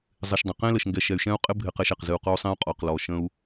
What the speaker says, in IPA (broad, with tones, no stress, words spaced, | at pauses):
zˤɪ˨ʃdˤə̃˨ qẽ˦lə˨ʃŋɡɛ˨ ʃɛ˨y̯ʃɛ̃˦u̯ qʼɪ˦ bʱɪ˨qɛ˨ʃ ɛ˨qzɨ˨u̯qɔ˦u̯sˤẽ˦u̯ qʼɔ˨qlɔ˨ʃə̃˦u̯